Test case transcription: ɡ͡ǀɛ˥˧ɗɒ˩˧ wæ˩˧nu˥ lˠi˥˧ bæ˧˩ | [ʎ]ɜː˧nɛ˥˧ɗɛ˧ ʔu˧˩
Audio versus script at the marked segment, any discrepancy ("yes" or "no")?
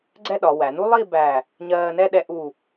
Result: yes